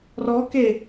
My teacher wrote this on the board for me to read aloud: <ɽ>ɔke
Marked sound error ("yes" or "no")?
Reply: yes